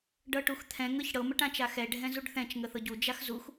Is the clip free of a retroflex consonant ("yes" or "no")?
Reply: no